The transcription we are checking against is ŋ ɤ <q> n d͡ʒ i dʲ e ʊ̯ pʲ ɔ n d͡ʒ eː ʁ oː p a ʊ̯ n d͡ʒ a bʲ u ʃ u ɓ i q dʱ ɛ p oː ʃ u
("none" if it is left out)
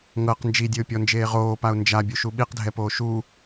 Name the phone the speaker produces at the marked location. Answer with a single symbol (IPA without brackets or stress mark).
q